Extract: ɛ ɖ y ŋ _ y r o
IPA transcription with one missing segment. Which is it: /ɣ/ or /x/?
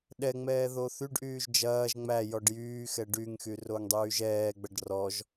x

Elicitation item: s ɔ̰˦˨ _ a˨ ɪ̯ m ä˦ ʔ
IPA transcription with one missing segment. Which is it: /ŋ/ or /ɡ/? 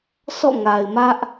ŋ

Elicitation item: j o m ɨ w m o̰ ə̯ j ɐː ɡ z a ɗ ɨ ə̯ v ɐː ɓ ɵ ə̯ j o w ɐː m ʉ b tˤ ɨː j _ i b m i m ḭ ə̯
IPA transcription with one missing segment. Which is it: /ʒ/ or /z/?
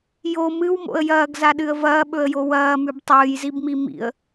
z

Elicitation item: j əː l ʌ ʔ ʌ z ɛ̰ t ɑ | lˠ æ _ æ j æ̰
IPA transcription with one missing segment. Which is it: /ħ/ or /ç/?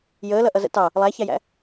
ç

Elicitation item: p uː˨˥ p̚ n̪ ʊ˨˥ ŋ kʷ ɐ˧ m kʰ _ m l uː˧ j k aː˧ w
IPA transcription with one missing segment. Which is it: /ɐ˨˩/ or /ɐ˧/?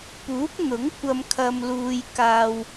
ɐ˧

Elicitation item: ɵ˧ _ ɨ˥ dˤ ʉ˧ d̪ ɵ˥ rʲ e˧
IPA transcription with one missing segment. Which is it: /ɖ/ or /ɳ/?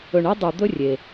ɳ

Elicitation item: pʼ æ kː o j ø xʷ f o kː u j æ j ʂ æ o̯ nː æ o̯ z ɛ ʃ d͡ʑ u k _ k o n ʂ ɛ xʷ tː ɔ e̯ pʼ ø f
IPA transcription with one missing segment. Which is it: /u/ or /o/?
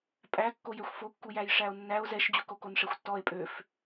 o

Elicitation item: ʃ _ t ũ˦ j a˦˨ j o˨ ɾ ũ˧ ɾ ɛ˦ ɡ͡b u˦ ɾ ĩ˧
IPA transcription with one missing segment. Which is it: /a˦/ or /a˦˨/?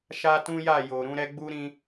a˦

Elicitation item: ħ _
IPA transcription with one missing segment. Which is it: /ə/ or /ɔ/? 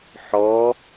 ɔ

